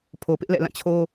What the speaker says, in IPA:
pʰ o˨ p ɪ˦ ʔ l ɛ̰˦˨ l ã˦˨ t͡ɕʰ o˦

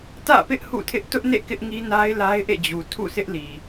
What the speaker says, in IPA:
t ä̰˦˨ p ɪ˦ ʔ h ṵ˦˨ tʰ ɪ˦ ʔ t ʊ˦ ʔ n ḛ˦˨ k ɪ˦ ʔ ŋ i˦ n a˦ ɪ̯ l a˦ ɪ̯ ʔ ḛ˦˨ d͡ʑ u˨ tʰ ṵ˦˨ sʰ ɪ˦ ʔ l i˨

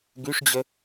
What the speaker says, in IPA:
ɡ y ʂ d͡ʑ ə

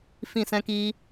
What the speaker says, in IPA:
f ĩ˦˨ s ɛ̃˦ k iː˦

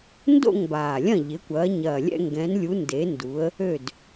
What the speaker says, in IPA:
n d o̰˥˨ ŋ b aː˨˩ lʲ ɐ̃˥˨ ʎ ɪ˨˦ kʷ ɐː˨˦ ɲ ɐː˨˩ lʲ ɛ̰˥˨ ŋ ɡ ɛ̃˨˦ n lʲ u˨˦ n d e˨˦ n d u˨˦ ə̯ | ø˥˨ d

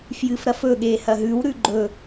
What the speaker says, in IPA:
f j ɨ f ɾ ɐ f ɵ ɠ e h ɐ ɦ ʉ w ɾ ʉ ɡ͡ǃ ɵ

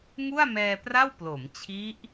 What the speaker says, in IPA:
ŋ u˥˩ a̯ m ɛː˧ p r a˥˩ w p l o˩˦ m t͡ɕʰ i˦˥ ʔ

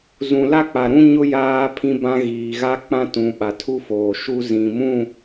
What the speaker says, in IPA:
z ũ˨ l a˦ k͡p a˨ ɾ ũ˦ ɲ ʊ˦ j aː˦ pʰ ĩ˦ b ã˦ ɣ iː˨ ɣ a˦ k͡p ã˦ t ũ˨ ɓ a˨ tʰ u˦ f oː˨ ʃ u˦ z ĩ˨ m ũ˦˨

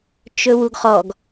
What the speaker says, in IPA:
t͡ʃ ɵ w u ɡ χ ɔ ɡ

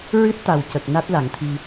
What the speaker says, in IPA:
ɹ ɨ˦˥ t̚ t̪ a˨˩ w c ə˨˩ k̚ n a˦˥ t̚ l a˨˩˦ ŋ t̪ʰ i˧

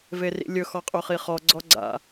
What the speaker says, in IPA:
v e r ḭ lʲ ɵ x ɔ qʼ ɵ χ i χ ɔ ɡ͡ǀ ɔ ɡ͡ǀ a̰

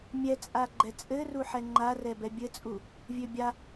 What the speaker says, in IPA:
mʲ ɛ t͡sʼ a ɡ͡ǃ ɛ t͡sʼ ɘ r u ħ ɛ ŋ͡ǃ a r ɛ b ɛ bʲ ɘ t͡sʼ u | vʲ ø bʲ a

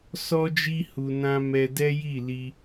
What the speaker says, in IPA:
s ɔ˦ d͡ʒ i˦ h u˧ n ã˦ m ɛ˧ d ɛ˦ j i˦˨ l i˧

